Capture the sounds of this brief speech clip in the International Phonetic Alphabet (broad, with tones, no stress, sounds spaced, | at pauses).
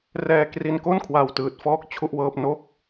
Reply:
r ɛː˧ k r i˧ n k o˥˩ n kʰ w a˧ w t ɯː˨˩ t̚ f ɔː˦˥ k̚ t͡ɕʰ u˥˩ ʔ w ɤː˥˩ p̚ n o˥˩ k̚